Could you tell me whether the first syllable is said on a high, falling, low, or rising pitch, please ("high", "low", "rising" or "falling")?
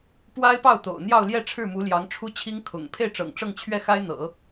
high